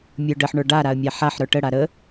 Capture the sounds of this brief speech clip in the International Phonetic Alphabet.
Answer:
mʲ ə˞ ɖ ə ħ ɳ ə˞ ɖ a ɾ a ə̯ mʲ a ħ a ħ ɾ ə˞ ʈ ə ɽ a ɾ ə

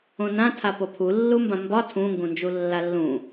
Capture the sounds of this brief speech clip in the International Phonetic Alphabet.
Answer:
õ n ã tʰ a p o pʰ u lː u m b ã m b ɒ tʰ ũ ŋ ɡ ũ n d͡ʒ u lː a lː ũ

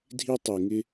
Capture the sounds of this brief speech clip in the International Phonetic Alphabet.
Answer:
dʱ i˥ tˤ i˧ ŋ ɪ˥

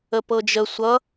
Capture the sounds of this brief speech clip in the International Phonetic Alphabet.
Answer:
ə p ɤ d͡ʒ ə sʷ ʌ

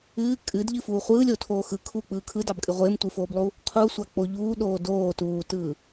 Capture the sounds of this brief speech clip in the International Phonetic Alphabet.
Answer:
ɨː kʼ ɨ d ʎ ɨ f uː χʷ ɯː lʲ o tʰ oː x ɯ kʰ uː k͡p ɯː kʰ ɯ d ɑ b kʼ ɨ ʁʷ ɪː m tʷ ɨ f oː b lˠ u | qʰ u sʷ a k͡p o ʎ uː ɗ oː d oː t uː t ɯː

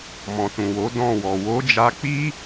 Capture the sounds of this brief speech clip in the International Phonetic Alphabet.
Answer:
m ɔ̃˨ t ũ˨ w o˨˦ d ɔ̃˦˨ w ɔ˨ w o˨˦ d͡ʒ a˧ k͡p i˦

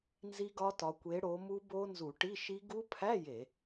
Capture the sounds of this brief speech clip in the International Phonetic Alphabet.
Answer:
n z i˦˥ ɡ ɒ˦˥ t ɒ˨˦ kʷ e˨˦ ɽ o˨˦ m u˦˥ b o˦˥ n z u˧˩˧ ʈ i˧˥˧ ʃ i˦˥ ɡ u˦˥ pʰ æ˧˥˧ j e˧˩˧

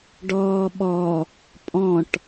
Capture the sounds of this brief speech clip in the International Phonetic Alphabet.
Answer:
ɖ ɔː ɓ ɔ | pʼ ɔ̃ ʈ

